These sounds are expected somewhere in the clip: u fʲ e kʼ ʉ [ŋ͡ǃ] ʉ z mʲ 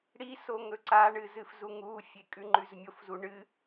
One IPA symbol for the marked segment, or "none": ŋ͡ǃ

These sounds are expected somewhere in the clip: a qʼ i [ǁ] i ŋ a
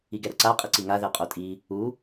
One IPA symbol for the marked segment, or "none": ǀ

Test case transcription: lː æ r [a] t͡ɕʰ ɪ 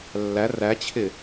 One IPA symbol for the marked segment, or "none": æ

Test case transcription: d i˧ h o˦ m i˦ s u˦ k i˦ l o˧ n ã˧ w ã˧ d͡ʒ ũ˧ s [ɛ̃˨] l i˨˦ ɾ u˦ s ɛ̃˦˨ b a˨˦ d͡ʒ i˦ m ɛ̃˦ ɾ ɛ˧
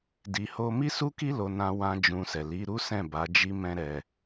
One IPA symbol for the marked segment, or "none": ɛ˨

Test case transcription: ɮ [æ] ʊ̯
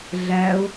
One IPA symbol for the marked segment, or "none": æ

